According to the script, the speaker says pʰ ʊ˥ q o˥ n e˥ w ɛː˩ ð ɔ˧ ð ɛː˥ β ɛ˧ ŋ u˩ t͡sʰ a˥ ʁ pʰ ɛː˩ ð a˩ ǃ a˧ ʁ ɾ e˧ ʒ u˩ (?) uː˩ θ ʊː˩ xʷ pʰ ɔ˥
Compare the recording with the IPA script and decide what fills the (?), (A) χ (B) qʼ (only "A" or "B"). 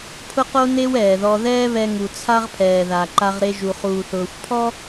A